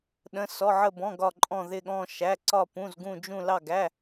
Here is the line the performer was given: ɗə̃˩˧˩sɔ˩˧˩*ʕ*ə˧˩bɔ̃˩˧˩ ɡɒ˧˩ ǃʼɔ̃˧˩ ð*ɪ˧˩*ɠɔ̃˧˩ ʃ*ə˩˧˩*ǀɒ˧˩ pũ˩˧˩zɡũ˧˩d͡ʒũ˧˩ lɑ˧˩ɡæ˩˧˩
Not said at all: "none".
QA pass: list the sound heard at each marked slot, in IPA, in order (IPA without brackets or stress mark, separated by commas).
ʕ, ɪ˧˩, æ˩˧˩